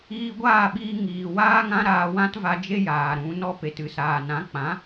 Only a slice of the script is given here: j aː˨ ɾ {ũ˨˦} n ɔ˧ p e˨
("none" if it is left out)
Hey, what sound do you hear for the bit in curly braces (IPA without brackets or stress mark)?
ũ˨˦